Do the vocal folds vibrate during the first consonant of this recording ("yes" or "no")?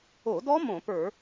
yes